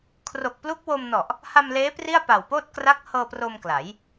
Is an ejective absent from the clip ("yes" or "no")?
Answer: yes